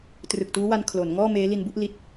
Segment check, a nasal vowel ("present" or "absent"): absent